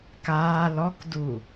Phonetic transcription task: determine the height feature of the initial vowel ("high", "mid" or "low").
low